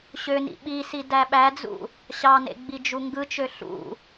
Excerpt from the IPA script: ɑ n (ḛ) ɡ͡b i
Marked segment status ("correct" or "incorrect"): correct